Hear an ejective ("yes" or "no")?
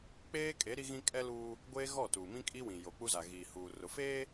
yes